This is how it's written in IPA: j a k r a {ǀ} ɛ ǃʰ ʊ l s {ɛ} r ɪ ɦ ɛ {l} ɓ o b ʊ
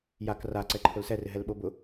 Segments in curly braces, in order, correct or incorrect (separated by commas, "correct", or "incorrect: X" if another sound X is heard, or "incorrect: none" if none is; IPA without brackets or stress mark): correct, correct, correct